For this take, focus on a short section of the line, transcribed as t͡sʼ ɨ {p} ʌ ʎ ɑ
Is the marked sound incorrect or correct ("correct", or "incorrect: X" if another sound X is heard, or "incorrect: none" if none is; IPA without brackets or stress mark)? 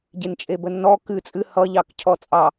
incorrect: h